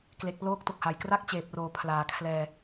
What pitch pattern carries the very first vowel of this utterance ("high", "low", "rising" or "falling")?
low